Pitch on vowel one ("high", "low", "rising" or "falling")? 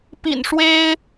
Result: low